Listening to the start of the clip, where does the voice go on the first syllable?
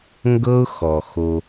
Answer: high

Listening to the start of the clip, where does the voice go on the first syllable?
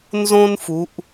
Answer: high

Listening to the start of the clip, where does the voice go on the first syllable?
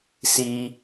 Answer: high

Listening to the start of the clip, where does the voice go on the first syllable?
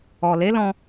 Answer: low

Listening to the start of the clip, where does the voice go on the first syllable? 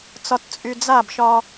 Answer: low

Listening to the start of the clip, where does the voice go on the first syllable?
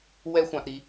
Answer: high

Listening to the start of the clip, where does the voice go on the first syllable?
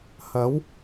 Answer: rising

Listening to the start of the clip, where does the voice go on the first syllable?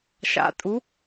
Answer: rising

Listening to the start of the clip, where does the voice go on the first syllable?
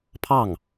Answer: falling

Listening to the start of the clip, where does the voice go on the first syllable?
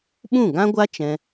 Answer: falling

